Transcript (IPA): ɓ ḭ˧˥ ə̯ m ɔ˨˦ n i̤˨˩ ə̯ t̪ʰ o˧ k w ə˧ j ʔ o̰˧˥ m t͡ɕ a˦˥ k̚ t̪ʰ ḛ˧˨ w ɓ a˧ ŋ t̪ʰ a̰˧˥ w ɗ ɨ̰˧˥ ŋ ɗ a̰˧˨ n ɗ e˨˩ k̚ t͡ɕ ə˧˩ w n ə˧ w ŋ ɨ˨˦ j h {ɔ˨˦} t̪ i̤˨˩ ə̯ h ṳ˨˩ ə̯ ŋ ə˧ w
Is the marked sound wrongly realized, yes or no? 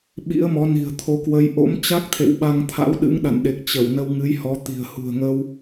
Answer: no